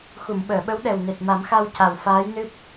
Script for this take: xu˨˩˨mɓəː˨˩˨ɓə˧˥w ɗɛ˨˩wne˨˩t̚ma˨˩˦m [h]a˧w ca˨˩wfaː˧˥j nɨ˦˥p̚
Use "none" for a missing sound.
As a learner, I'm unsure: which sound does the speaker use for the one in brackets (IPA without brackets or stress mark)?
x